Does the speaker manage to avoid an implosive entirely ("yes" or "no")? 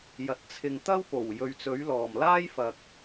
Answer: yes